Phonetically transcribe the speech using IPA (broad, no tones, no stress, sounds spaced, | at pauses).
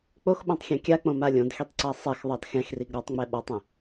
k͡p o x ɓ õ tˤ xʲ ɛ̃ kʲ a k͡p õ m a lʲ õ d x i tˤ ǀ a sˤ ɛ x ðˤ ɑ d x ɛ̃ x r i ɡ ɾ ɔ tˤ ŋ͡m ɛ ɓ ɔ tˤ ɛ̃